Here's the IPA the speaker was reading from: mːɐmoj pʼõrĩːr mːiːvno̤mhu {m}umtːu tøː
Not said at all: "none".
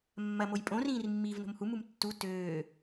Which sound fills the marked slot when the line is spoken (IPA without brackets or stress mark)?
m